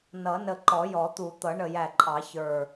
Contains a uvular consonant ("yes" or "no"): no